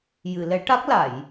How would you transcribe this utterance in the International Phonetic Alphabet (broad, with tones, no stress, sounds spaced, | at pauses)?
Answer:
j ɨ˨˩˨ l ɛ˨˩˦ ʈ a˦˥ k̚ l a˨˩˨ j